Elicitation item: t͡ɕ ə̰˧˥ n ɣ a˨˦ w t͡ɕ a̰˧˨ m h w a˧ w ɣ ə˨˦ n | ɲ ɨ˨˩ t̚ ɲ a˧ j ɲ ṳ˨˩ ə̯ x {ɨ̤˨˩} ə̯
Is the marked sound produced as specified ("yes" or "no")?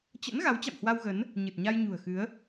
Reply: no